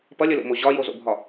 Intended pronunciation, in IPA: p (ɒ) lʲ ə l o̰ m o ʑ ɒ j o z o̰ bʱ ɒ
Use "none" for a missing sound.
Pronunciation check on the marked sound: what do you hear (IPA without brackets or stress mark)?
ʌ